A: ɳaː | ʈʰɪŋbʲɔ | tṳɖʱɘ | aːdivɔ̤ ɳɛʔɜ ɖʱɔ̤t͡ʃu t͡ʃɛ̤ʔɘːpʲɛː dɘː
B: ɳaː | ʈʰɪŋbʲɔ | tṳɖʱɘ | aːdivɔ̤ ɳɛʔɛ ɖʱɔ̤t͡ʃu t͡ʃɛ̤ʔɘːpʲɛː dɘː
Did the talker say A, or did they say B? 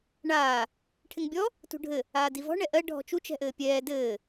A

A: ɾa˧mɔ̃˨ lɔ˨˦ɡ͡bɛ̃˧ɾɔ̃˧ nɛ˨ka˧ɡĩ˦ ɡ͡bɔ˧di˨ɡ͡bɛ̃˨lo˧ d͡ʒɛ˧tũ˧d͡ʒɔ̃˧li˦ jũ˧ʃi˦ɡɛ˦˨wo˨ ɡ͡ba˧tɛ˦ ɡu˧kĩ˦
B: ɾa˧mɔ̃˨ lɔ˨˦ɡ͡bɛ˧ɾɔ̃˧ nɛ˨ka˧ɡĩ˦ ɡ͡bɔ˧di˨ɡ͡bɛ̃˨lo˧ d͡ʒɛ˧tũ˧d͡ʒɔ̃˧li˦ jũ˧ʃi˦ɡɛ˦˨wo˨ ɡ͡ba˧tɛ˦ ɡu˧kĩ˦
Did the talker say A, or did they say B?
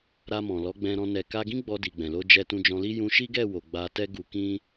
A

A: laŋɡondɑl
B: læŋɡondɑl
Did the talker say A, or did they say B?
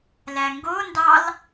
B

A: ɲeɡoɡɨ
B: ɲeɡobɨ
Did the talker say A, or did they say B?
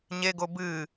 B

